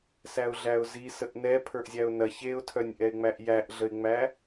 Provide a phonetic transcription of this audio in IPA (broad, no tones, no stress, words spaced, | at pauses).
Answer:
sæʊ̯ɮæʊ̯zi səʔnɛ pʰə˞ʔzʲæʊ̯nɐ çeʊ̯tʰœnʲʔɛɪ̯ ŋ͡mæʔjæʔɮəɪ̯ŋ͡mæ